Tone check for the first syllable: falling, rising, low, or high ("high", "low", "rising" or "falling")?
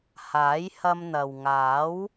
rising